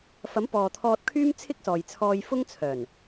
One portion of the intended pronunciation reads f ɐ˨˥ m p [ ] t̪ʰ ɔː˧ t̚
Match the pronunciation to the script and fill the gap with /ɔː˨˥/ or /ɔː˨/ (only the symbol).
ɔː˨